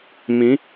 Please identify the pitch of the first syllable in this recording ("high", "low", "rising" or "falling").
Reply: rising